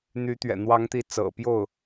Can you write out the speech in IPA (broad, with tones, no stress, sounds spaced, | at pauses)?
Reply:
n̪ y˧˥ t̪ ɥ ɛ̰˨˩ n̪ w ɑ˧˥ ŋ t̪ i˧˥ t͡s ɤ̰˨˩ p j o˥˩ ʊ̯